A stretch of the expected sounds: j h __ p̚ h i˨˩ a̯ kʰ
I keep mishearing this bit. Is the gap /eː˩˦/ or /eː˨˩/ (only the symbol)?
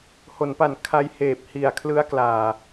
eː˨˩